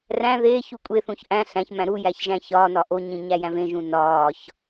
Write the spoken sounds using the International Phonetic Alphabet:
ræ̃ ðeːç ukʷʼeθũç ʔæ̃ ɬæ̃çmæ̃ ɾujæç ʒæ̃çɒːnɒ ʔoɲĩ ɲæjæ̃vẽʒũ nɒːç

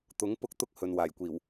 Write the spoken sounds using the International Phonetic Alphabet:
t̪ʊ˨˥ŋ pʊ˥k̚t̪ʊ˥k̚ hɵ˨nwaː˨˩j kʷiː˨˩w

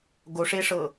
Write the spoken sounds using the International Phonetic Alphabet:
ɡoʂeʂɤ

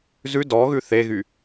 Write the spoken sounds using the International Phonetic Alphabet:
zʉ dɔɣʉ θeɣy

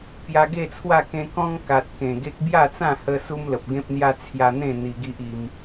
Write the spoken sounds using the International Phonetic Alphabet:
pja˧ɡe˥˧t͡sʰwa˥˧ kẽ˧kɔ̃˦ŋ ka˨t̚ kẽ˨˩ɡe˦k̚ bja˥˧t͡sã˥˧ hə˦ su˦mlə˨p̚ ɡẽ˦p̚n̪ja˦ t͡sʰja˧n̪ẽ˥˧ n̪i˧ɡi˦ʔi˧m

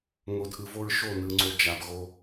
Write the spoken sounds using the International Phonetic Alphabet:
ŋo˨dʔɯ˨vo˦ɹ ʃo˦˨nɯ˨ŋ͡ǀo˨ d͡ʒa˨bɣo˦

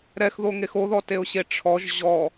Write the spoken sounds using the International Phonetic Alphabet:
ɾɛxðoŋex oðɔteʊ̯ɕe ʈ͡ʂʰɔʒ ʑɔ

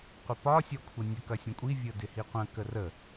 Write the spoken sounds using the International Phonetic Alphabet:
qʷəpɒ sʲɔkʷʰɤnʲə kɐsʲɐ̃kʷʼi vʲɤdɪhiqʷɐ̃ kərə

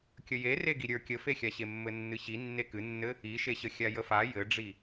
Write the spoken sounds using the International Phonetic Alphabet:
kʲəje reɡiɾʲə˞ kʲəfexʲaɕe mːɘnːɨɕi nːekɨnːɘ | iʃeɕə xʲajəfa jɘɖ͡ʐi

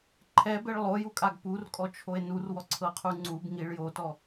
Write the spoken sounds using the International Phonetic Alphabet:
ǃʰɛbeɭ lˠojukʼaɡ purkʼɔt͡ʃʰoe̯ nurwɔǀʰɤqʰu ŋ͡ǀub ŋiɭ jotɔ

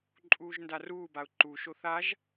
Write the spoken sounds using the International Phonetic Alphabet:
ǃʼuːʒndaruːbaʊ̯ ǃu ʃoθaʒ

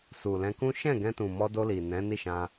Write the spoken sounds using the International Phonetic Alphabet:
su˨lɛ̃˧kũ˦ ʃɛ̃˦˨ɡɛ̃˧tũ˨mɔ˧ do˧ li˨nɛ̃˨˦ ni˦˨ʃã˧

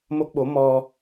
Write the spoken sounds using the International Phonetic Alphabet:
mo˦˥k̚ɓo˨˦ mɔ˧

